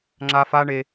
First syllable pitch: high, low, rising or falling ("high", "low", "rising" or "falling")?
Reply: high